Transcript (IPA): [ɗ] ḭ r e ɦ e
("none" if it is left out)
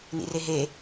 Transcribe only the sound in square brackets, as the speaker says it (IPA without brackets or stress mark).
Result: n